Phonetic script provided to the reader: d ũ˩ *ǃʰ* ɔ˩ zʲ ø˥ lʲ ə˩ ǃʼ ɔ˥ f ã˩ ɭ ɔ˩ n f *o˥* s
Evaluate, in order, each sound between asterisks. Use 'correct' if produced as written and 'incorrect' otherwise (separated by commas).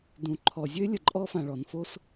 correct, correct